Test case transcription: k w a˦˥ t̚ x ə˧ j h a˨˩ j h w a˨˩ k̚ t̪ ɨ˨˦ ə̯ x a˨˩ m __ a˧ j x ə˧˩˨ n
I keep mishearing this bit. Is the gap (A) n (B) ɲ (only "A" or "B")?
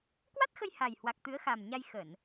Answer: B